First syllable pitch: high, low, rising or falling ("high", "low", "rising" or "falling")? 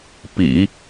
low